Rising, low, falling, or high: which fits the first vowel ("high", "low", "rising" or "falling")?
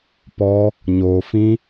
high